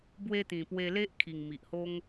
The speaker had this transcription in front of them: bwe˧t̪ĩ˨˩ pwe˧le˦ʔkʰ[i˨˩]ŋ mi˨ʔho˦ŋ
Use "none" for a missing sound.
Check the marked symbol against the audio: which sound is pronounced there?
i˨˩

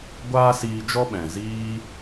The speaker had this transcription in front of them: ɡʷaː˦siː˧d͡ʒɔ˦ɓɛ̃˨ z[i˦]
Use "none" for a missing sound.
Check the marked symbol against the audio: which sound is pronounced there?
iː˦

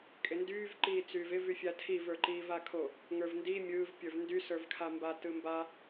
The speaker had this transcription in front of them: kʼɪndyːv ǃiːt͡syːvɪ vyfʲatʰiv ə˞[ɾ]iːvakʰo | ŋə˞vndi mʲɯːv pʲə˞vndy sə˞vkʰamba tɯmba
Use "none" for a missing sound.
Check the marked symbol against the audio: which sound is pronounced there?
ǃ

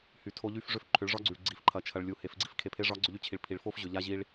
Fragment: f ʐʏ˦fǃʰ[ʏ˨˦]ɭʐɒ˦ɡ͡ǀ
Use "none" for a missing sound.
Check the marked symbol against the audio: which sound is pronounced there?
ʏ˨˦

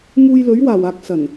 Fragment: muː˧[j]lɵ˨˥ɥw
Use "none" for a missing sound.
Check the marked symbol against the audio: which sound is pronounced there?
j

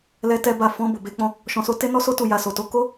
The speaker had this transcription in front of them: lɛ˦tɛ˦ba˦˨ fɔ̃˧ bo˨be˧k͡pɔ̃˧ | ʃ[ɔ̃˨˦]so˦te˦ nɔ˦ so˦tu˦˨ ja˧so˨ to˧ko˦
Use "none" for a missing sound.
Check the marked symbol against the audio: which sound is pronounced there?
ɔ̃˧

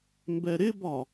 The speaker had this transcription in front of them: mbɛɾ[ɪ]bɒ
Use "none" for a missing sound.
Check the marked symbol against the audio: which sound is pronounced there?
ɪ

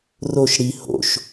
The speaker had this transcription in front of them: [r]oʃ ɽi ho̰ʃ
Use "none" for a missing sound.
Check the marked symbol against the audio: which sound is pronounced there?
r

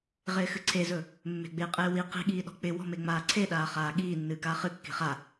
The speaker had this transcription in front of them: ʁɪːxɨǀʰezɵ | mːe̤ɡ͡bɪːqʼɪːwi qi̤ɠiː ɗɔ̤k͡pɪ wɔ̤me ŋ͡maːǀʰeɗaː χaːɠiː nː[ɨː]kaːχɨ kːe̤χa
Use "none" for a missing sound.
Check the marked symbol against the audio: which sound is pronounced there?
ɨː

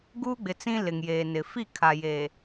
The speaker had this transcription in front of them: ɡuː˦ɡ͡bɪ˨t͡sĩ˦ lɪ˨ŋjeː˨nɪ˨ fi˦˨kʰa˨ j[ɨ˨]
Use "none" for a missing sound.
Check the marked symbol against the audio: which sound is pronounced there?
e˨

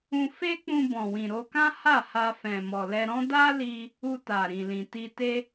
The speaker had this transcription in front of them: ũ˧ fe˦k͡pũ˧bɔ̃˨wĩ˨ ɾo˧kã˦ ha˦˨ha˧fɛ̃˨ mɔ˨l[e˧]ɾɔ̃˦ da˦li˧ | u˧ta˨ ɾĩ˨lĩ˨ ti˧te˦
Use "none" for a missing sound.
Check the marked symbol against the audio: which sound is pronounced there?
ɛ˧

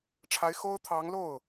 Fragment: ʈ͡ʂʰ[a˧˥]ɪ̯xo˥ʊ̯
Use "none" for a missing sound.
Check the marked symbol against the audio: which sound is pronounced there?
a˧˥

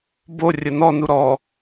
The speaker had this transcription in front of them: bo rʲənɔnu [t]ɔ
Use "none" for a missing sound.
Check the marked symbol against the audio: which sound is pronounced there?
ɾ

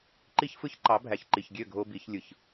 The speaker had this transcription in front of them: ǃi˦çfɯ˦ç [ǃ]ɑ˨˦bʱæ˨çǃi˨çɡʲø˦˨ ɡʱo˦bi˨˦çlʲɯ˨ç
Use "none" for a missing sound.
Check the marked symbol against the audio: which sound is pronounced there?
ǃ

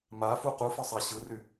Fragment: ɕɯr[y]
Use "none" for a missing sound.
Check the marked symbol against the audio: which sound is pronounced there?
y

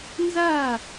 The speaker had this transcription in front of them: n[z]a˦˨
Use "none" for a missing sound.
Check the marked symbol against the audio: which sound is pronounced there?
z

